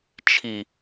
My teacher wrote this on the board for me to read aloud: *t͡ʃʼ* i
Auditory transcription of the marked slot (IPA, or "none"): t͡ʃʰ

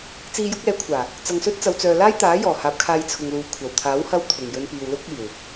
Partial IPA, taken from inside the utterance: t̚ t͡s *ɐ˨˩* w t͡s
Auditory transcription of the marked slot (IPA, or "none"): ɐ˨˧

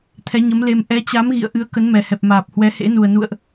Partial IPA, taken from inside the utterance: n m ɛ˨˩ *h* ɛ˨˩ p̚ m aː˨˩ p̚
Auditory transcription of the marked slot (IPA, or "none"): h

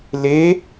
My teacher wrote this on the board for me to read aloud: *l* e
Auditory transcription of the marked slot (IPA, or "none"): l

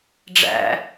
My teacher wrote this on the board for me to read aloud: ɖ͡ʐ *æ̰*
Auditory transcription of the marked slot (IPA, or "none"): æ̰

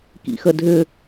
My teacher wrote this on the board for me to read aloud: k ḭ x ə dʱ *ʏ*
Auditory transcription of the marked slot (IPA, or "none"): ʏ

